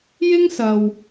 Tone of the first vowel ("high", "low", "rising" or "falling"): high